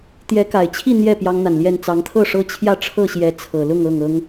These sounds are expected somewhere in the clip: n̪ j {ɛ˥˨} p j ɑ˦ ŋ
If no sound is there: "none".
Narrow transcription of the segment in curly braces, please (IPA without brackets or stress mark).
ɛ˥˨